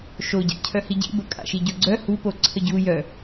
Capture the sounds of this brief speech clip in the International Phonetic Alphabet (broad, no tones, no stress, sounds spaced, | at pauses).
ʃ o ɟ a̰ cʰ œ h i ɟ ḭ b ə kʼ a̰ ʃ i ɟ o ɡ͡ǀ œ h u p o ǀʰ ə ɟ u j œ